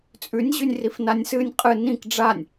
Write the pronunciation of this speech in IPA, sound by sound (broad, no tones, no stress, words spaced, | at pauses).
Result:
t͡sʼʉnʲʑʉnʲ rifnanʲsɨnʲ qʼɨ nĩk ɖ͡ʐanʲ